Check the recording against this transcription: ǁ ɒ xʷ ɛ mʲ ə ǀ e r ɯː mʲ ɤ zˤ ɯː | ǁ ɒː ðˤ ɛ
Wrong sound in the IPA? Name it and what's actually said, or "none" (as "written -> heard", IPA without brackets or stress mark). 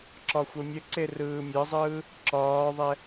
none